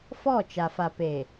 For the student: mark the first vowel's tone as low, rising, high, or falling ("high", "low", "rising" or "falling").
falling